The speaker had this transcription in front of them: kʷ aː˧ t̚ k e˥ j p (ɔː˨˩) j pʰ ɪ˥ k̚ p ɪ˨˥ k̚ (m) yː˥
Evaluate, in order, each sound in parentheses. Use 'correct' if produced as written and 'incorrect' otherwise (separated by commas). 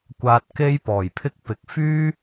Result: correct, incorrect